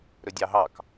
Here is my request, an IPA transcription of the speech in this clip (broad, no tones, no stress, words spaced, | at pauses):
ɾɵdʲɑɦɑk